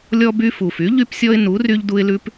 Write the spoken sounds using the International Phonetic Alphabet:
lʲ ɔ˦ b y˦ f u˨˩ f y˨˥ ʎ y˦ p sʲ ɔ˦ ɪ̯ n u˨˥ r y˦ ʎ d u˦ ɪ̯ l ʉ˦ p

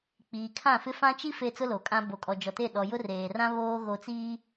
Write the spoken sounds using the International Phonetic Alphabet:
k͡p iː˨ kʰ ã˦˨ f ɪ˦ f ã˦ t͡ʃ i˦ f e˦ t͡s ʊ˦ l o˨ kʼ ã˦ b o˨ kʼ ɔ˨ d͡ʒ ɔ˨ t e˦˨ ɗ ɔ˨ j ʊ˦ r eː˨ r ã˦ β oː˦ ɣ o˨ t͡s iː˦

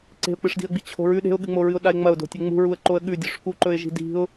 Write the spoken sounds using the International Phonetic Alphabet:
ǀ e̤ ʊ̯ k͡p ɨ ʂ d i̤ ə̯ ɡ͡b i t͡ɕʰ o̤ ɹ ʉ ɗ e̤ ʊ̯ ɠ ɨ ŋ͡m o ɹ ɨ ʊ̯ ɗ a ɪ̯ ŋ͡m ɐ ʊ̯ d o̤ tʲ e ŋ͡m ṳ ɹ u ə̯ ǃ o ə̯ ɠ ʉ dʲ ɵ ʂ k u ǃ ɵ ɪ̯ ʒ i̤ d i̤ ʊ̯

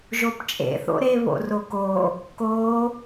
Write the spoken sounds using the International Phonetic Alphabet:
ʒ o p t͡ʃʼ ḛ θ o̰ ɾ e β o̰ r o k o | k o

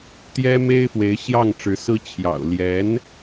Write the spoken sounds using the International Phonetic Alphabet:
t̪ j ɛ˥ m e˥ ɪ̯ f w e˧˥ ɪ̯ ɕ j ɑ˥˩ ŋ ʈ͡ʂ ɻ̩˧˥ s ɹ̩˥ t͡ɕʰ j ɑ̰˨˩ ʊ̯ l j ɛ˧˥ n

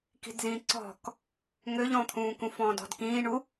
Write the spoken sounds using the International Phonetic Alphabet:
k i̤ d z ĩː ǀ ɔ̤ k | ŋ ø ʎ ɔ̃ t̪ʰ ũː k ũ f ɔ̃ː d ɔ̤ d k ĩː ɳ u

